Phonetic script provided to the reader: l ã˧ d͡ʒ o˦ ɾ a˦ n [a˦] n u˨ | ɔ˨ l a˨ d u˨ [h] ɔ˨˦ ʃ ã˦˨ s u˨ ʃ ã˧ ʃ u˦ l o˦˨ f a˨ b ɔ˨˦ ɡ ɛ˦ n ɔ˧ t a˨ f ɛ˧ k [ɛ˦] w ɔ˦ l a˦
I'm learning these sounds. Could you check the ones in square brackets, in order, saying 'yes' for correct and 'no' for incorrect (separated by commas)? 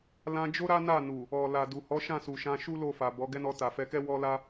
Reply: no, yes, yes